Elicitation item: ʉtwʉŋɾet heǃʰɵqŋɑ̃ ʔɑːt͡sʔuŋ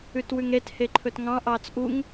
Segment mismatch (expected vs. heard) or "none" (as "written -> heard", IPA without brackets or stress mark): q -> t